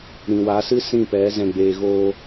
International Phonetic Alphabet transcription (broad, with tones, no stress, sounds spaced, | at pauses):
ɾ ĩ˨ w a˨˦ s ɨ˦ s ĩ˦˨ p ɛ˨˦ z ɛ̃˧ ɡ͡b eː˧ ɣ oː˧